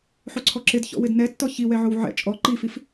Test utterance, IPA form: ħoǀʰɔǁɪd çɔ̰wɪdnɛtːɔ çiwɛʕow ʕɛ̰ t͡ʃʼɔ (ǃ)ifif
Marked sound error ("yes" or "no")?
no